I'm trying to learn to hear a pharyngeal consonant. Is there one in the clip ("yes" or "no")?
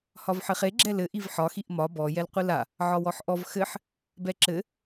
yes